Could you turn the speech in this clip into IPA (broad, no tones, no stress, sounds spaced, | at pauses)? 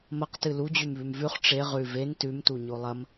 m ɐ q t ɨ l u d͡ʑ ʉ m β ʉ m v ʉ χ ʈ͡ʂ e ʁ ʉ v e n t ʉ m t u ɲ o lˠ ɐ m